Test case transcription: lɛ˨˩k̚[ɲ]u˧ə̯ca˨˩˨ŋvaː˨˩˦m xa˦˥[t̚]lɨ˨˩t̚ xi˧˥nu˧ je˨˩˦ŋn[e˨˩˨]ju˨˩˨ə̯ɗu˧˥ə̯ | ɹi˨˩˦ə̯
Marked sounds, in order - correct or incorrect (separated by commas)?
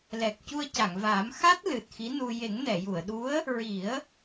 incorrect, correct, incorrect